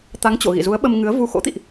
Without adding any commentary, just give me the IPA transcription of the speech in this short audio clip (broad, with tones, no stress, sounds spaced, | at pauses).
t̪ a˨˦ ŋ t͡ɕ o̰˧˨ ɣ ḭ˧˨ z u˨˦ ə̯ ɓ ə˧ m ŋ ɨ˨˦ ə̯ v u˨˦ x o̰˧˥ t̪ ḭ˧˨ ʔ